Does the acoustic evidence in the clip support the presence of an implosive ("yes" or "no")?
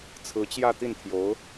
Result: no